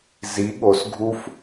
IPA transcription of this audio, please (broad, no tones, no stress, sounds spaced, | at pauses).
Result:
z i ɠ o s ɡʱ u f